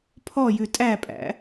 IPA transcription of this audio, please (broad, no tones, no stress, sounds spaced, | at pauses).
pʰ ɔ j ʉ tʼ æ pʼ æ̰